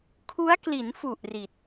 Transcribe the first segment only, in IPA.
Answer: kʰ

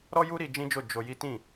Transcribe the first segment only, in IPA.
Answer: ɾ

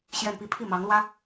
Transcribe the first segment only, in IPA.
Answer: ɕ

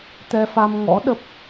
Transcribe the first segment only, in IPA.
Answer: t̪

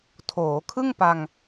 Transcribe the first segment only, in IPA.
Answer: tʰ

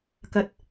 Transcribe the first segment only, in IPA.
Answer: k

